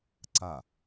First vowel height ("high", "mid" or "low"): low